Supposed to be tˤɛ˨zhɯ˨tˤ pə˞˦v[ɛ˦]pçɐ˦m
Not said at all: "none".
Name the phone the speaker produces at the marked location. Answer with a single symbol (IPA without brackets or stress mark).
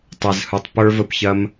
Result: ə˦